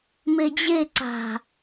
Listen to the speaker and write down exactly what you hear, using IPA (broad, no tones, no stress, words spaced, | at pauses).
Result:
med͡ʑe ǀa̤